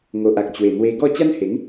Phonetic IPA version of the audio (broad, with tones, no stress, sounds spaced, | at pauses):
ŋ o˨ ʔ a˨ k̚ t͡ɕ w e˨˩ n̪ w e˧ ɡ ɔ˥˧ t͡ɕ a˦ n h e˨˦ ŋ